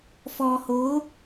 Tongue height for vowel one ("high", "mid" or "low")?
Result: mid